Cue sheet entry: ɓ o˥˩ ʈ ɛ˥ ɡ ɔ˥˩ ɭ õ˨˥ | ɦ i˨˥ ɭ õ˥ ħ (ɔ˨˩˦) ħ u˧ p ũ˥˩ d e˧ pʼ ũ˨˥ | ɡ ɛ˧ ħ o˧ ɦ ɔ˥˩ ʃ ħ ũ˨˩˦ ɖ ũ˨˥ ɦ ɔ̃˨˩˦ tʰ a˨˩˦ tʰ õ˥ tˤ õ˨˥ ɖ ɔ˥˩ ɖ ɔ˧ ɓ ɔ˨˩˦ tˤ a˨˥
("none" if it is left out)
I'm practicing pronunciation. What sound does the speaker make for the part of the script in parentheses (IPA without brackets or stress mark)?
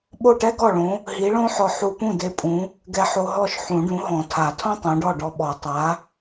ɔ˧